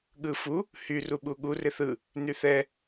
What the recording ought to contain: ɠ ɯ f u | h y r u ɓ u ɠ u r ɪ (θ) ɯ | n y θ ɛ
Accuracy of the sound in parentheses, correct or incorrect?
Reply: correct